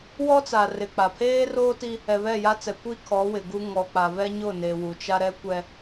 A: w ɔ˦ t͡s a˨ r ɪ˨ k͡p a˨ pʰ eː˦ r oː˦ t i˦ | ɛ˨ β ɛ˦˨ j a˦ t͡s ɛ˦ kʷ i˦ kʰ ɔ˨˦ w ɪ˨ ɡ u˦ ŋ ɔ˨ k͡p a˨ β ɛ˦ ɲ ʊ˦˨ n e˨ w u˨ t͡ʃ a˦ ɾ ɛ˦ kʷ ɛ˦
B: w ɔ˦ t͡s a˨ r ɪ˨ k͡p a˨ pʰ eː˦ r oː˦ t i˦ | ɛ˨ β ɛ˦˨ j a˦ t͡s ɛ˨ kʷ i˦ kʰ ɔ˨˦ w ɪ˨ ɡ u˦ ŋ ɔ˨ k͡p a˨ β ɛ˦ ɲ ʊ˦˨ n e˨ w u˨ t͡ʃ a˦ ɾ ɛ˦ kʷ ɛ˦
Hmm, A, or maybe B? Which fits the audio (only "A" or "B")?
B